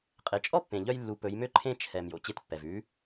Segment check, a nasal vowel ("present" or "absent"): present